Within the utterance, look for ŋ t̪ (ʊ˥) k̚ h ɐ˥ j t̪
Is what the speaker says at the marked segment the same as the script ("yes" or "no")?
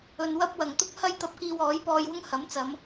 yes